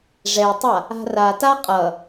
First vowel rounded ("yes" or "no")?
no